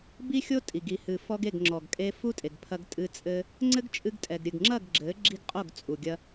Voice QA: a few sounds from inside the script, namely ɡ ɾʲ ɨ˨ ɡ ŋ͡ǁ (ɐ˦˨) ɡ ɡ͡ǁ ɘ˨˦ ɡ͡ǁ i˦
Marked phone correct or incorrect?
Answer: correct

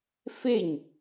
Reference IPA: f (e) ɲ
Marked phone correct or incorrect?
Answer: correct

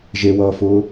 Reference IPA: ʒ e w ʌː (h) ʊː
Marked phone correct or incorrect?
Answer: incorrect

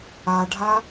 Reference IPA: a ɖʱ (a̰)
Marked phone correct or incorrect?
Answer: incorrect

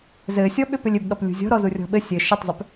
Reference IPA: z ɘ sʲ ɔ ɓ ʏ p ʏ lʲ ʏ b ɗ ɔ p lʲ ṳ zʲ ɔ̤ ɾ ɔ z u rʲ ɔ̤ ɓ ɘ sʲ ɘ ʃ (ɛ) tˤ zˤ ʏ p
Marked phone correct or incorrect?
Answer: incorrect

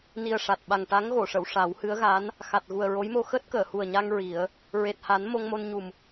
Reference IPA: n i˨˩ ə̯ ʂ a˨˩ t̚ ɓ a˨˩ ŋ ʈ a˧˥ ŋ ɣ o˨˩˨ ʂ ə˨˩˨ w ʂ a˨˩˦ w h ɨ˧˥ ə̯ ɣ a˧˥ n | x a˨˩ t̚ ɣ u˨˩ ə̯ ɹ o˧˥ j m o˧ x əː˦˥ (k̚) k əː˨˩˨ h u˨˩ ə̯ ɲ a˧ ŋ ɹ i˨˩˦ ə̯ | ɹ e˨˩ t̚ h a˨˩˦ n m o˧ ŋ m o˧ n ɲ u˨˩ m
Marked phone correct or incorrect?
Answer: incorrect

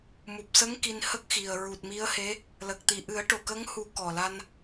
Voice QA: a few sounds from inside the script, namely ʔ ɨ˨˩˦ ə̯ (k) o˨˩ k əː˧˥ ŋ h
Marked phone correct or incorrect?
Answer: incorrect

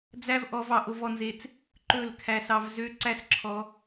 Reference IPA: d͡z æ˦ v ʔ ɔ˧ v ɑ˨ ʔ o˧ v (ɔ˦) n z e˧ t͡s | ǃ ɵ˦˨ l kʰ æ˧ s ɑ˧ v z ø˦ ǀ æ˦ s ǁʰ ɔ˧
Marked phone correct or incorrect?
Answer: incorrect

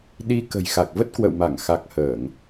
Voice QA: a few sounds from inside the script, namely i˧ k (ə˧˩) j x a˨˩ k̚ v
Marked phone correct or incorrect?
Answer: incorrect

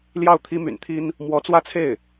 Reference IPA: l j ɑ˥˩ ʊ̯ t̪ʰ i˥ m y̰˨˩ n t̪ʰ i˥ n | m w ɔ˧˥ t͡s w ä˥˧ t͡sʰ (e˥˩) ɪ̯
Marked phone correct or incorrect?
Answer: correct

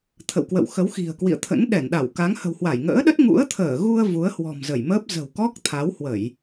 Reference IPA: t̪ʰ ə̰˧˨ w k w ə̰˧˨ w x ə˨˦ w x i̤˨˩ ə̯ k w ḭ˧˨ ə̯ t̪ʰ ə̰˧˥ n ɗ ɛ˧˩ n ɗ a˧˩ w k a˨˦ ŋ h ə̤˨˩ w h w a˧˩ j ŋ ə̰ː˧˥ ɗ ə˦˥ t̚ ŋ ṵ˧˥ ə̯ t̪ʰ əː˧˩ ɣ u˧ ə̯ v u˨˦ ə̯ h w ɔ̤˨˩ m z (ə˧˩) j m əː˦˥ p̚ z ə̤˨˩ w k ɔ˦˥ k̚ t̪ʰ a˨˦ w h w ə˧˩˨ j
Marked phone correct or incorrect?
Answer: correct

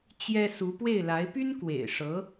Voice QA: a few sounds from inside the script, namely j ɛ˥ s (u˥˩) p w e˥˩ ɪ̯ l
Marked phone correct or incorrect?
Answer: incorrect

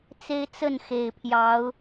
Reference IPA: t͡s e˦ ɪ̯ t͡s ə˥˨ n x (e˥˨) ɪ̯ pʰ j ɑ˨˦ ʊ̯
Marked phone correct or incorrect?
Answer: incorrect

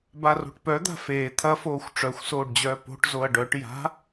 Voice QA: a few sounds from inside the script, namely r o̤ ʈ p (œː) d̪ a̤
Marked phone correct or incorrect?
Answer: incorrect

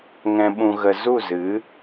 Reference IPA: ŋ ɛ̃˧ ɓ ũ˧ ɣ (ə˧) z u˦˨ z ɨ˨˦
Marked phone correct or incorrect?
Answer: correct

